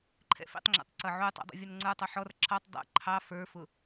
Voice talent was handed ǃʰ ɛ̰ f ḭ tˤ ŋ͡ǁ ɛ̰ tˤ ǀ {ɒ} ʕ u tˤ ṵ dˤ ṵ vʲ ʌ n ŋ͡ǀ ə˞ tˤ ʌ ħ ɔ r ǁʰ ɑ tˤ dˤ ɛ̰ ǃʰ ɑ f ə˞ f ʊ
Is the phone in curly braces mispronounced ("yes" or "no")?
yes